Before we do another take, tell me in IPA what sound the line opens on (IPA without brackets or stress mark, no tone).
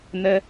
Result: n̪